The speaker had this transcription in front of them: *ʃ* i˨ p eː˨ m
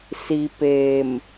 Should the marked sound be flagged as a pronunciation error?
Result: yes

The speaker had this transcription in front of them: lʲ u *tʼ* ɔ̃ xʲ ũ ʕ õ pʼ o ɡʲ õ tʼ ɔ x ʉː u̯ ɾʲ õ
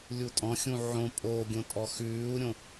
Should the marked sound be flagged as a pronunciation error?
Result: no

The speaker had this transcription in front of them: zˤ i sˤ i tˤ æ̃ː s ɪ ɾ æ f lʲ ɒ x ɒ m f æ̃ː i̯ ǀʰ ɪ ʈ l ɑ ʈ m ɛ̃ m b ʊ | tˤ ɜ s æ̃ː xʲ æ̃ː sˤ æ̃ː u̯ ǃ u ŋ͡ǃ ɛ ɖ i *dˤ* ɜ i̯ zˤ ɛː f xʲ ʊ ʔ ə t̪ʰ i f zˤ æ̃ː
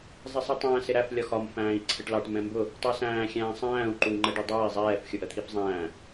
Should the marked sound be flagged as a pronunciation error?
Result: no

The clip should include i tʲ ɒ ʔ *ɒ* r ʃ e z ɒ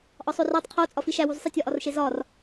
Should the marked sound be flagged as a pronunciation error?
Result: no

